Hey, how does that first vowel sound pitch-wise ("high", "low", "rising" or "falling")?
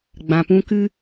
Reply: low